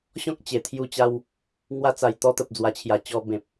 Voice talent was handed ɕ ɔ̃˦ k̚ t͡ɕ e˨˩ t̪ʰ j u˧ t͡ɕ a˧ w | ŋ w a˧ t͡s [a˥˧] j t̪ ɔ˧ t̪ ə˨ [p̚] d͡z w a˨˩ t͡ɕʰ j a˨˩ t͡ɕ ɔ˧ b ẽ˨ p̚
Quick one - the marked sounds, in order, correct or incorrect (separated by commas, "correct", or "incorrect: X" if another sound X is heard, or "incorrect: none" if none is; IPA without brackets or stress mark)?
incorrect: a˨˩, correct